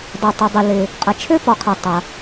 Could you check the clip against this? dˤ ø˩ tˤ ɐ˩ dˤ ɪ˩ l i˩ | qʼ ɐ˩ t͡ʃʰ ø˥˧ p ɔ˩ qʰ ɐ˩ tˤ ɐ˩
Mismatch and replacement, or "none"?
i˩ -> ɪ˩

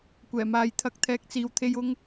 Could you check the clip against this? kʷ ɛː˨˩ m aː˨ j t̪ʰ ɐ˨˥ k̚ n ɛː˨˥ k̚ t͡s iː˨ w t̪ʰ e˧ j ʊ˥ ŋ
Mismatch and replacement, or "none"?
n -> t̪ʰ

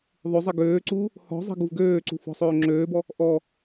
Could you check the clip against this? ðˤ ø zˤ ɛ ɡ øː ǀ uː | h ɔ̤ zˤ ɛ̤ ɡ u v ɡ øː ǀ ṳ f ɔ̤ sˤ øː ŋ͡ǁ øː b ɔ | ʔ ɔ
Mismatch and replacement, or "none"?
none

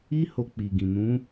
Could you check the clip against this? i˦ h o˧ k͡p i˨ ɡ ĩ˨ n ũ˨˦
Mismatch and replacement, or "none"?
none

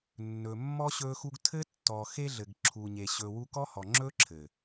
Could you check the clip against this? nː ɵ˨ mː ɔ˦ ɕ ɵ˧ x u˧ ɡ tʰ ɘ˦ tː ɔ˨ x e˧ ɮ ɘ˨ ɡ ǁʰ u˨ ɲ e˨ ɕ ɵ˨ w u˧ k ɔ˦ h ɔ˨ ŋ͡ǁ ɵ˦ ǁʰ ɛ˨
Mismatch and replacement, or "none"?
ɛ˨ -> ɘ˨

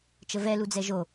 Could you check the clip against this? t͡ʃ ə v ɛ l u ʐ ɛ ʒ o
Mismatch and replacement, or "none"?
ʐ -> d͡z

